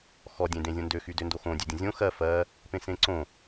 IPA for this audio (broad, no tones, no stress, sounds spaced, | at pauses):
x ɔ dʲ ẽ d ẽ zʲ õ n d ø x y d ø n d o x õ dʲ ø dʲ ə̃ zʲ õ x ɜ f ɜ | p ẽ s ẽ ǀ õ